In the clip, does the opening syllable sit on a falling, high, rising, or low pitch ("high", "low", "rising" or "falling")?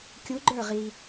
rising